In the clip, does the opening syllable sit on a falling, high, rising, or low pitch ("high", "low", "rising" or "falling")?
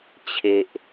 low